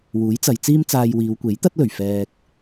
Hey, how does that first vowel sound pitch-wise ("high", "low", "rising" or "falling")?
rising